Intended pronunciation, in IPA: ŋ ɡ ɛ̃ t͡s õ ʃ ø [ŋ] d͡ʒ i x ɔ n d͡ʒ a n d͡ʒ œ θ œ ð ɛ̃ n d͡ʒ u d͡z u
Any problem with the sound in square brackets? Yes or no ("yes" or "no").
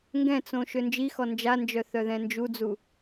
yes